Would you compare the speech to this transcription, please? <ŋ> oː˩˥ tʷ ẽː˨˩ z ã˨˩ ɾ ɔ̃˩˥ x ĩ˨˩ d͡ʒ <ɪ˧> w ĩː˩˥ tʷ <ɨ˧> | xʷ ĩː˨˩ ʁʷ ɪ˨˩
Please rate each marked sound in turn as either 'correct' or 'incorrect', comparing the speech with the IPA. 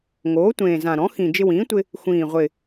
correct, correct, incorrect

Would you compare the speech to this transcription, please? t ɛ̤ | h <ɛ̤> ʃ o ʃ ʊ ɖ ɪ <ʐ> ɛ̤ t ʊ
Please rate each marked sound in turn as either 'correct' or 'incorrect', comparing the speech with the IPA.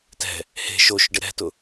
incorrect, incorrect

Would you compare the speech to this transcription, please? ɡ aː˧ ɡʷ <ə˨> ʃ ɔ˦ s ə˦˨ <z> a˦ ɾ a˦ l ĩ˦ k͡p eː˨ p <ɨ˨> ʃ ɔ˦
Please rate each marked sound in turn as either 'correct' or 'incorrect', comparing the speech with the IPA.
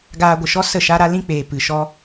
correct, incorrect, correct

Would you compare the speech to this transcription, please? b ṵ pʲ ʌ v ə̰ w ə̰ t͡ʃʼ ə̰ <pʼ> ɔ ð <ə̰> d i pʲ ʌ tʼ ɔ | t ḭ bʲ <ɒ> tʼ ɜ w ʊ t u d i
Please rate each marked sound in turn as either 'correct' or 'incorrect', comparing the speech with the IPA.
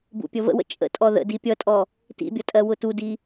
incorrect, correct, incorrect

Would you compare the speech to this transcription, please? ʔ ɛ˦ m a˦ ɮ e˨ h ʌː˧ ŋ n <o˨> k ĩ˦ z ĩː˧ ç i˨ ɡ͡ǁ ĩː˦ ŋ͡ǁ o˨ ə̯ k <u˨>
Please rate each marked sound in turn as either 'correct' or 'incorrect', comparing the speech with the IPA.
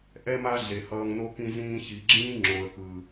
incorrect, incorrect

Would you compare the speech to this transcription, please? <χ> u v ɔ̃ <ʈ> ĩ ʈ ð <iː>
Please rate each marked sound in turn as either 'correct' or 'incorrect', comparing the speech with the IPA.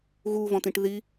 incorrect, incorrect, incorrect

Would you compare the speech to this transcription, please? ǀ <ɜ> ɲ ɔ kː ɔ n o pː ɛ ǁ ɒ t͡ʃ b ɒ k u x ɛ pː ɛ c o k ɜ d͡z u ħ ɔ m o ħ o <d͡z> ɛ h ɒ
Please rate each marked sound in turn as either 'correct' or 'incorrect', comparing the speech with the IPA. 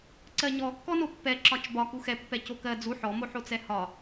correct, incorrect

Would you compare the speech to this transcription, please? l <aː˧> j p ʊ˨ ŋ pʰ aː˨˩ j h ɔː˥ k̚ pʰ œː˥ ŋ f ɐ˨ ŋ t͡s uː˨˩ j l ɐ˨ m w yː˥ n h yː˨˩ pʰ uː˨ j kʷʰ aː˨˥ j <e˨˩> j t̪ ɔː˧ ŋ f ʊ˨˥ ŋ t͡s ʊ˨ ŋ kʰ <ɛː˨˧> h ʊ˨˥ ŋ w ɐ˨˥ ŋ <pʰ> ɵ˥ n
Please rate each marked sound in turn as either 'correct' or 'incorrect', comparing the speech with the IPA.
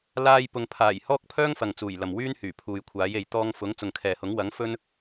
correct, incorrect, incorrect, incorrect

